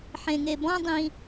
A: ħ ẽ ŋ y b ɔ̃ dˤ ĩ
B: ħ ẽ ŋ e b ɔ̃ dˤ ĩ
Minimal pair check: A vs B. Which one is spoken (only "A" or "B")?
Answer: B